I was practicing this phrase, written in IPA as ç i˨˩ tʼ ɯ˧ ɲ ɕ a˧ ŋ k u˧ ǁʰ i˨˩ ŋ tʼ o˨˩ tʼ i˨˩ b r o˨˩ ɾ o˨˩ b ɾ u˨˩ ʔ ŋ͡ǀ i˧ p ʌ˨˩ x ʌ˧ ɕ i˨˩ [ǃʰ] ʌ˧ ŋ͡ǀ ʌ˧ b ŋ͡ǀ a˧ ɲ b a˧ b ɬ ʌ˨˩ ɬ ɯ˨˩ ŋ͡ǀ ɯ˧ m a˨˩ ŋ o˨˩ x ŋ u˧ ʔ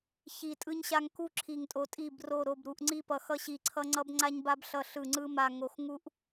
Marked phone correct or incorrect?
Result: incorrect